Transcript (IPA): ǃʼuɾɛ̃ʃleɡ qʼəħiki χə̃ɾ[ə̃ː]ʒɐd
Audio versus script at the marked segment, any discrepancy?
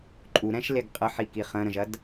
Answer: yes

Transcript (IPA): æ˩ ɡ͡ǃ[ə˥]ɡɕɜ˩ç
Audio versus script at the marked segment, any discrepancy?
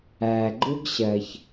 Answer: yes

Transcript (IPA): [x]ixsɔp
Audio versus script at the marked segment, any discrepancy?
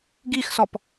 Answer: yes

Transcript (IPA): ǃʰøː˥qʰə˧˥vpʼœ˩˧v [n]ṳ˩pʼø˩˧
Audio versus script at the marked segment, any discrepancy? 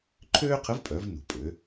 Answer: no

